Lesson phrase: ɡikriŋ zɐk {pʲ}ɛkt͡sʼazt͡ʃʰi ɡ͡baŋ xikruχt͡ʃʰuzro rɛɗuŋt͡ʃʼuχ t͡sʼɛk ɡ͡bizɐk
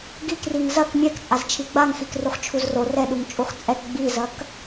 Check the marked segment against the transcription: incorrect: mʲ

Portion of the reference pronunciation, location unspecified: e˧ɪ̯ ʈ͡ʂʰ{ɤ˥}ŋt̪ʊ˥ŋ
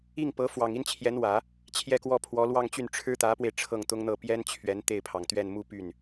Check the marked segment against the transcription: incorrect: ɤ˥˩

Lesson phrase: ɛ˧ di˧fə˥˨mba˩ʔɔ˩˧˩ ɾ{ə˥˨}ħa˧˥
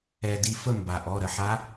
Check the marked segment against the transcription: correct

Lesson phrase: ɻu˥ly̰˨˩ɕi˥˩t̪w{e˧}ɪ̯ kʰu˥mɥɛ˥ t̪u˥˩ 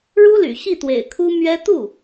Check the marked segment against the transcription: incorrect: ḛ˨˩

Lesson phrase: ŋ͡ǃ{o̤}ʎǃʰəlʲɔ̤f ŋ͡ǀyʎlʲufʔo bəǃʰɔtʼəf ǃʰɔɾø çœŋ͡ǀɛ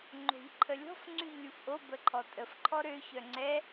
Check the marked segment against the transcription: correct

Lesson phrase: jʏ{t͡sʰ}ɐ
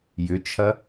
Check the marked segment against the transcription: incorrect: t͡ʃʰ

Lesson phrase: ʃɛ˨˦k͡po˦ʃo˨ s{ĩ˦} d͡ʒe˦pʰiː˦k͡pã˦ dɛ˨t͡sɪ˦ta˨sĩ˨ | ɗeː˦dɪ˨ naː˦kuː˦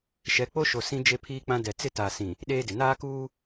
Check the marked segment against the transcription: correct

